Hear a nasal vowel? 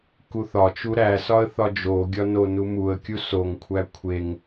no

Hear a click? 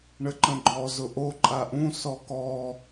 yes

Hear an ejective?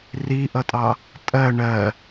yes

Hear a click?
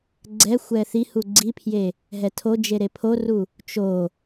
yes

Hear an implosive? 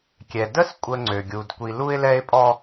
no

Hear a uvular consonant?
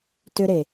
no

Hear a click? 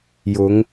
no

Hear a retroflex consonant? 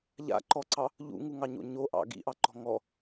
no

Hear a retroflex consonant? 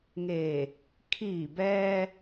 no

